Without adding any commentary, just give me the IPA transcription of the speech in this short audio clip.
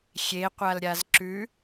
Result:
xʲeqʷalɾʲaz ǁʉ

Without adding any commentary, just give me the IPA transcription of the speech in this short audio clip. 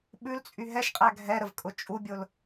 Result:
ɓʉlt͡sʼy ɦɛʃqʼæ ɡʱɛɾəvkʼʊ t͡ʃʼubʲʊl

